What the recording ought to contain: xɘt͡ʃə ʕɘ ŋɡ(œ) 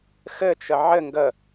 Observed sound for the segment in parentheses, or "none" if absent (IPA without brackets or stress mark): ə